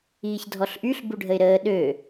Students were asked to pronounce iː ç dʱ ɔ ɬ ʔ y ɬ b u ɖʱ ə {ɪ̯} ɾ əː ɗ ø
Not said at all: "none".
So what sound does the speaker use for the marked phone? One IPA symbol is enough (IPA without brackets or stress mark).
ɪ̯